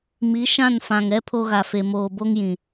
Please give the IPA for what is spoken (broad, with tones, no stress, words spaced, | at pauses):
mi˨˦ʃã˦˨nfã˨ŋɛ˦ pʰo˦ɣa˨fe˨ moː˨bo˦ŋjĩ˨